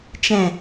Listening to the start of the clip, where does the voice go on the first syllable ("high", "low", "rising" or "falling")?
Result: low